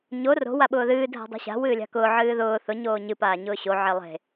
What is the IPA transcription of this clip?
ɲ o r o̤ w a ɓ ʊː ð ɨː dʱ a̤ dˤ o̤ ɕ a̤ w ɨː lʲ a̤ k ʊː ʕ ɨː ð ʊː θ ʊ ɲ oː ɲ ɨ p aː ɲ ʊː ɕ o ʕ e lˠ e̤

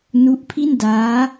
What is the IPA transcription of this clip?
n u˦˥ ʔ pʰ i˥˩ n d aː˦˥

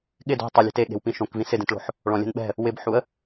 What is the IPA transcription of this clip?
ɠ ɪ d o̤ tˤ ʊ lʲ e̤ t e ɠ e̤ w p ĩ ʃ õ k v ĩ s ɪ d ẽ t ɭ o̤ ħ | ɭ ɔ̃ lʲ ɛ̤ n ɓ ɛ̤ | w ɪ b ħ u ə̯

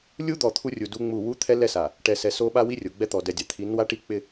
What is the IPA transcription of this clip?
lʲ u˦ d̪ ɔ˨ t̪ʰ u˦ rʲ u˨ d u˦ ŋ͡m u˦˨ w u˦ t̪ʰ ɛ˦ l ɛ˦ s a˨ | ʈ ɛ˨ s ɛ˨ s o˦ ɓ a˦ w i˦ rʲ o˨ ɡ͡b ɛ˦ t̪ ɔ˨ d ɛ˨ dʲ a˨ t̪ʰ i˨˦ n w a˦ ʈ i˦ k͡p ɪ˦

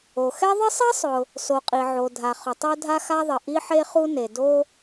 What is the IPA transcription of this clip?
o˩ x ɛ˥ ðˤ ɪ˥ sˤ i˥ sˤ ʊ˩ | s o˩ qʼ i˩ ʕ o˩ dʱ a˩ χ ʊ˩ tˤ o˥ dʱ a˥ x a˥ ðˤ ɪ˩ ʔ i˥ ħ e˥ χ u˥ n e˩ d o˥

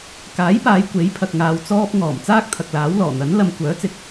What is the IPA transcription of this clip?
k aː˨˥ j p aː˨˧ j kʷ e˨˥ j pʰ ɐ˨ k̚ ŋ aː˨ w t͡s ɔː˧ p̚ ŋ ɔː˨˩ m t͡s aː˥ k̚ t̪ʰ ɐ˨ k̚ l aː˨˥ w l ɔː˨˩ n̪ ɐ˨˥ n l ɐ˧ m kʷ œː˨˥ t͡s ɪ˨ k̚

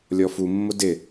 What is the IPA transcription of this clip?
lʲ ɔ f u mː ʊ d ɪ

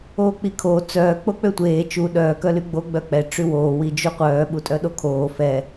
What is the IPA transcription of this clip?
oː k͡p i kʰ oː t͡s œː k͡p o k͡p ø tʷ eː t͡ʃ u ɗ œː k œ l y ɡ͡b o ɡ͡b œ k͡p ɛ ʈ͡ʂ y w oː w i d͡ʒ u qʷ œː ɓ u tʼ œ ɗ o kʰ oː f ɛ

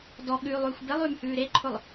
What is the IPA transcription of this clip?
d ɔ ɠ ʉː lˠ ʉː xʷ b e lˠ ʉː m h ʉː ɾ e ǃʰ ʊ lˠ

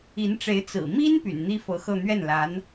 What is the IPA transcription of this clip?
i˧˥ n ʈ͡ʂ e˧˥ ɪ̯ t͡s ɹ̩˨˩ m i˥ n p y̰˨˩ n n̪ i˥ f ɤ˧˥ x ɤ˥˧ n̪ ɥ ɛ˥˩ n l a˧˥ n

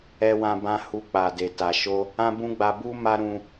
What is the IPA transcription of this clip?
ɛ˦ w ã˦ b ã˦ h u˧ k͡p a˨ d e˨ t a˨ ʃ o˧ | ã˦ b ũ˦ ɡ͡b a˧ b u˦ m a˦ ɾ ũ˧

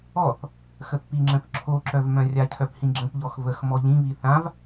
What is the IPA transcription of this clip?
ɔ θ | x ə θ p i ŋ͡ǁ ə̃ θ ǁʰ o ǁ œ v m œ̃ rʲ a cʰ œ p h ĩ ɡ͡ǁ ə̃ p ʎ ɔ x v ə x m ɔ ʎ ĩ β i θ ã v

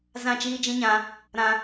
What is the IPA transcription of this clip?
z ã˦˨ t͡ʃ iː˦ d͡ʒ ĩ˦ ɲ ã˧ | ɾ ã˧

